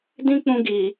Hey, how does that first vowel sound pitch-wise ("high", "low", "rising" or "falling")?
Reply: high